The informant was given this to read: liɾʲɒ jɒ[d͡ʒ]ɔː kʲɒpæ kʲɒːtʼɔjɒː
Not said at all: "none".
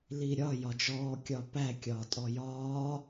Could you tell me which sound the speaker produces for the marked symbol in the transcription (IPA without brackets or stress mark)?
d͡ʒ